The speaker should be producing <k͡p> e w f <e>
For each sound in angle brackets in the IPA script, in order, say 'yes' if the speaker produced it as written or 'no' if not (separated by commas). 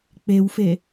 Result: yes, yes